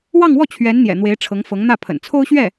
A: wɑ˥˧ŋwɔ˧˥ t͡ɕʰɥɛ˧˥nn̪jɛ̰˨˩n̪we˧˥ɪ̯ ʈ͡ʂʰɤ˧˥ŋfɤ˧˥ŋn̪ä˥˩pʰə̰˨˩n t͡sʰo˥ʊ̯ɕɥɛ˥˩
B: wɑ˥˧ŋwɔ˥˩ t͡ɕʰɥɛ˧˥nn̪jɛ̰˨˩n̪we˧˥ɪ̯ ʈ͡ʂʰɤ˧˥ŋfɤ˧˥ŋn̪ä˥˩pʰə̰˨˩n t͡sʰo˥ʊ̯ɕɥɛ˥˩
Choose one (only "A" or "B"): B